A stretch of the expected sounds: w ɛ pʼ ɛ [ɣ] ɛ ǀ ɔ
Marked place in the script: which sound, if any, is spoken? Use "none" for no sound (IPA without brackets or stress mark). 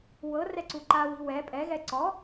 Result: ɣ